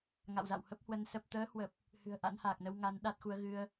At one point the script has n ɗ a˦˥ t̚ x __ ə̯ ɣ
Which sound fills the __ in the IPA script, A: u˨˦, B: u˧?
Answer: A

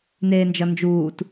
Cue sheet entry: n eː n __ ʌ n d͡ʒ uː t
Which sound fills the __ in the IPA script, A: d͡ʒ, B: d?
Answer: A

